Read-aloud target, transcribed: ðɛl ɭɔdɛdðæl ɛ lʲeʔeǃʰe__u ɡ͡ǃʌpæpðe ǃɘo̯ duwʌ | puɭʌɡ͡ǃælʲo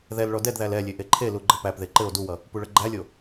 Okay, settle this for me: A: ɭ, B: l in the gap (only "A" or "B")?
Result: B